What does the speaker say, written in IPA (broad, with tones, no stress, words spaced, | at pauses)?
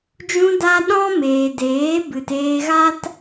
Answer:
d͡ʒũ˧da˧ ɗɔ̃˦ meː˨deː˨˦ bɨ˨teː˧ɣa˦t